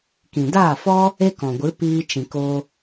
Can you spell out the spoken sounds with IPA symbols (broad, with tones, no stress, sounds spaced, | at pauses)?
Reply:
k ĩ˨ d aː˦˨ f ɔ˦ | e˦ k ɔ̃˨ ɡʷ ɨ˨˦ p iː˧ t͡ʃ ĩ˨ k o˧